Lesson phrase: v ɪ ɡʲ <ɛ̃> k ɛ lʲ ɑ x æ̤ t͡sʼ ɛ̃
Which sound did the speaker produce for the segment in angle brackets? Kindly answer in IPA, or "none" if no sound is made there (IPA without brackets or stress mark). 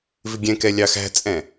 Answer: ɛ̃